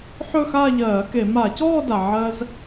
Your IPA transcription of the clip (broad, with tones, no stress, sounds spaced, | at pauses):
ħ ɵ˥˧ x aː˥˧ ʎ ɜː˧˩˧ k e˧˩˧ m a˧˩˧ c ɔː˥˧ d a˩ ʕ ɜ˧ z